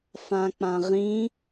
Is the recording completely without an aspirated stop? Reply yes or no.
yes